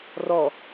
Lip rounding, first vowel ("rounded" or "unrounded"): rounded